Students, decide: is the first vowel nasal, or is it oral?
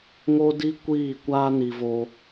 oral